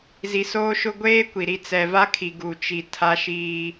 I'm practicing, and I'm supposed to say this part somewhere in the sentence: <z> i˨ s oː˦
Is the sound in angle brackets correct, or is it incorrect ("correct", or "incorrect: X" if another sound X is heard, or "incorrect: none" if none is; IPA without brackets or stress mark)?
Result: correct